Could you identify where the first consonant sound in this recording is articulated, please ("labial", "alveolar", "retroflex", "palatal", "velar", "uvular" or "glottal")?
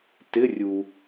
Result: alveolar